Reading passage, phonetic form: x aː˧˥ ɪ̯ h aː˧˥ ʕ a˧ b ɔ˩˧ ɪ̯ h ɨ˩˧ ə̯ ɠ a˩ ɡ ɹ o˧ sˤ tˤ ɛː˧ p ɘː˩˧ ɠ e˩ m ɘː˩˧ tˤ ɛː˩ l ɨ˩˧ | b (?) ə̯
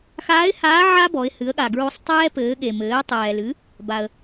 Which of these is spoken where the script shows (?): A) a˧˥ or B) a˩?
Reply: B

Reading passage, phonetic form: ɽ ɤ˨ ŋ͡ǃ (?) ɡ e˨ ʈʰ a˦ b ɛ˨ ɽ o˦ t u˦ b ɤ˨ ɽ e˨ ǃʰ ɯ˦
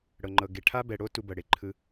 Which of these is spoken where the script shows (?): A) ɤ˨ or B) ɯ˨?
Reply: A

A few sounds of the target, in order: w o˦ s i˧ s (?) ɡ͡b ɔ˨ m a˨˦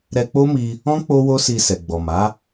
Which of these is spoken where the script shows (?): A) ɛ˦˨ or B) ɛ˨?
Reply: B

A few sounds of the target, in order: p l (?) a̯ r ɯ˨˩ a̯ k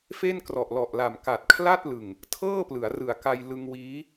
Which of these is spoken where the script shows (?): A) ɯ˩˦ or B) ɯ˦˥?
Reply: A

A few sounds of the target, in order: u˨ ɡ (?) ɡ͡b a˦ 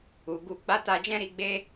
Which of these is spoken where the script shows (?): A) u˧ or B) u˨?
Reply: A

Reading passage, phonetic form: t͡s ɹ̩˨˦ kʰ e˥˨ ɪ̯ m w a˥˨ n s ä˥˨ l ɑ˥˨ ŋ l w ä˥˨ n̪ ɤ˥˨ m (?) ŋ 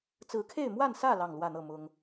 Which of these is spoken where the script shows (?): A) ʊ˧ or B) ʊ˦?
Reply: B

